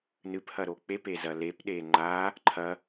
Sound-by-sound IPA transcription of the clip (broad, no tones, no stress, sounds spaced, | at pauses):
n ɨ p h ɐ ɾ o k͡p e p e z ɐ l e p ɗ e ŋ͡ǃ a | ǃʰ ɐ